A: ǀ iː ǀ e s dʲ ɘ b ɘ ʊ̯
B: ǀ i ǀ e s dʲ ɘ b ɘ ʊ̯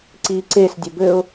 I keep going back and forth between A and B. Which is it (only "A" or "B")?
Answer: A